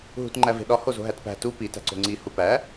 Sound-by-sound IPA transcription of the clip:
ɦ ṳ t ŋ͡ǃ æ v e̤ ɗ ɒ h o z o̤ ɦ æ t p æ̤ t u p i t æ̤ ǀ o̤ ŋ͡ǀ i h u p æ

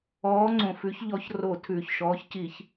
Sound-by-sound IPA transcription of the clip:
ɔː˨˥ ŋ͡ǀ õ˩ f ʉ˨˥ ç ʎ ɔ˨˥ ç r o˧˩˧ tʰ ʉː˩ ç ʃ ɔː˨˥ ç c i˧˩˧ ç

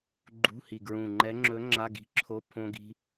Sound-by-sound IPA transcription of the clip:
ɡ͡ǃ ṳ˧˥˧ h i˨˩ ɡ ɹ ũ˨˩ ŋ͡ǃ ɛ˧˥ ŋ͡ǁ ɵ˧˥ ŋ͡ǁ a˧˥˧ ɡ i̤˧˥ ǁʰ o˧˥˧ pʰ õ˧ ɡ i̤˧

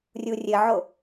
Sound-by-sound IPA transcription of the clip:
rʲ u rʲ ɘ ʕ o

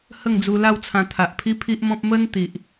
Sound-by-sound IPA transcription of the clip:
h ə˥˧ ŋ d͡z u˧ l a˥˧ w t͡sʰ ã˧ t̪ʰ a˨ ʔ pʰ i˦ pʰ i˦ ʔ m ɔ̃˦ p̚ m ə˦ n t̪ i˨ ʔ

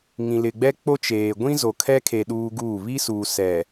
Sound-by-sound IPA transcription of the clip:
ŋ ĩ˨ l ɪ˨ ɡ͡b ɛ˦ k͡p o˦ t͡ʃ eː˨ ɡʷ ĩ˦ z o˨ kʰ ɛ˦ kʰ e˨ ɗ uː˦ ɡ uː˦˨ β i˦ s uː˨ s ɛ˨

